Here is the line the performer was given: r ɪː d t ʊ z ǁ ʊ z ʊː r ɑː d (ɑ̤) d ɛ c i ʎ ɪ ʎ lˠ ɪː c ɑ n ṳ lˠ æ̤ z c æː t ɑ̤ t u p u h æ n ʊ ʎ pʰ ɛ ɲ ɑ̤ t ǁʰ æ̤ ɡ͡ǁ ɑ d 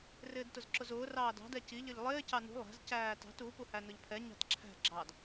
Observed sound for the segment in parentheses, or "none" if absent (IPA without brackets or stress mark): ɑ̤